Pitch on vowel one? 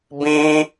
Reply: high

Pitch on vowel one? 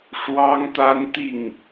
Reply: high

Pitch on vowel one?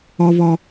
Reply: high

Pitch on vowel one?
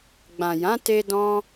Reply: low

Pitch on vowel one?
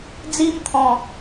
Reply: high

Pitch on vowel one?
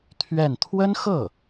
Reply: falling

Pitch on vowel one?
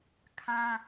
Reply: high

